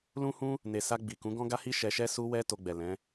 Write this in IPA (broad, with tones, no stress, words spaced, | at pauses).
lũ˦hũ˦ | ne˨sa˧ ɡ͡bi˨kũ˨˦ ɡɔ̃˦ɡa˦hi˦ ʃɛ˧ʃɛ˦ su˦wɛ˦ to˧ɡ͡bɛ˨ lɛ̃˨˦